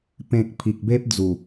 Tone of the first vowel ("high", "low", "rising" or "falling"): low